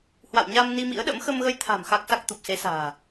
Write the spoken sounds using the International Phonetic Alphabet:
h w a̰˧˨ w ɲ a˧ m n i˧ m ḭ˧˥ ə̯ ɗ ə̰˧˥ m x ə˧ m ɣ ə˧ j t̪ʰ a̤˨˩ m x a˦˥ k̚ s a˦˥ k̚ t̪ u˨˩ p̚ s e˨˦ s a̤ː˨˩

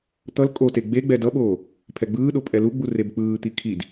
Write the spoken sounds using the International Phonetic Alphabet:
t̪ ʌ l kʼ o t e ɡ͡b e ɡ͡b ɛ d ʌ ɓ oː | pʰ ɛ ɡ͡b ɯː ɗ o pʼ ɛ l u ɡ͡b u r e b k͡p ɯː t̪ i kʰ i d

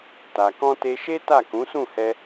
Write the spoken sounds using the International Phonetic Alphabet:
t a˨ k ɔ̃˧ t e˧ ʃ e˦ t a˦˨ k ũ˨˦ s ũ˦˨ h ɛ˧

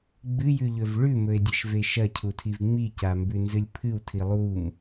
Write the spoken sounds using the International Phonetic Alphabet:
ɡ͡b ɨ j ʉ ʎ ɵ v ɭ ʉ m ɵ e̯ dʲ ɐ ʃ v e ʃ ɐ cʰ u tʰ i v ŋ͡m i c a m b ʉ n z ɨ lʲ pʰ ɨ w tʰ i lˠ u m

